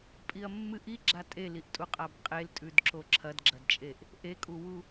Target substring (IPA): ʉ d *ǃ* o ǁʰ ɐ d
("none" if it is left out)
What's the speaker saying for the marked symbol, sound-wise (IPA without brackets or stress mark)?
ǁ